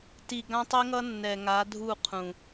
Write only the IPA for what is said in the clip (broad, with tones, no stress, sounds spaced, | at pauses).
t i˨ ɡ ã˦ tˤ i˦ ŋ ʌ˦ nː ɛ˨ ŋ a˨˦ dʱ u˦˨ qʰ ũ˨